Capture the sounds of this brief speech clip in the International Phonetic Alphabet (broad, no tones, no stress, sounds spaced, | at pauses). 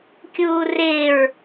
kʲ uː r ɪː ɹ